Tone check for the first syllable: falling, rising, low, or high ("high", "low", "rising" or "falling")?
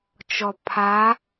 low